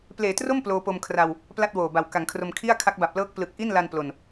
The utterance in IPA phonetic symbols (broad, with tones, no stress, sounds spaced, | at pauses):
p l eː˨˩ t r o˥˩ m p l oː˧ p o˧ m kʰ r a˧ w | p l a˥˩ t̚ w oː˨˩ b a˨˩ w k a˩˦ ŋ kʰ r o˧ m kʰ i˥˩ a̯ kʰ a˦˥ k̚ b a˨˩ p̚ l ɤː˦˥ k̚ p l ɯ˨˩ k̚ ʔ i˥˩ n l a˧ n p l o˧ n